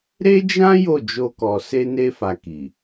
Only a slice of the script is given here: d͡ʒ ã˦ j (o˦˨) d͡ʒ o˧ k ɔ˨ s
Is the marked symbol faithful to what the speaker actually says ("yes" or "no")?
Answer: yes